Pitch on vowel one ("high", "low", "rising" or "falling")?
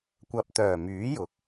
low